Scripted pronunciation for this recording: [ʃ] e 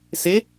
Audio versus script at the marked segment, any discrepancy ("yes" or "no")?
yes